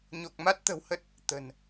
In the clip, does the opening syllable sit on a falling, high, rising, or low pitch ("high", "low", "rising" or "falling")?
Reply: low